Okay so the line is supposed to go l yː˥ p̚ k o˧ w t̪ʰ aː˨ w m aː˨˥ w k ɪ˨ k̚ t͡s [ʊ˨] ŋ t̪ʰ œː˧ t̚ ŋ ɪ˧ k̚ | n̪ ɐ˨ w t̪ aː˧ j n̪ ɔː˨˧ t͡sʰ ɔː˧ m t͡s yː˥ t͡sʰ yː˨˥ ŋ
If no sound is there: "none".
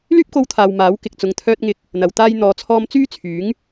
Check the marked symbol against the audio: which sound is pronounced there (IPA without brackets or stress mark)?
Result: ʊ˨